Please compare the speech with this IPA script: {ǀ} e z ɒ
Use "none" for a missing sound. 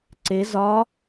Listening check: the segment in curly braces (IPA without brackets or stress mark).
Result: ǀ